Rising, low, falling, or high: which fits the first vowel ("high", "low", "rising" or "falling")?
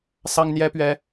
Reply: high